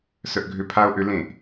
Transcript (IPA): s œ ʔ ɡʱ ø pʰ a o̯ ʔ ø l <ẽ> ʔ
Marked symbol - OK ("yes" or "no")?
yes